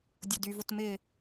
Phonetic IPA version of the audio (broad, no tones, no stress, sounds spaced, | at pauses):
dʲ ʊ d y v ʊ t m ɪ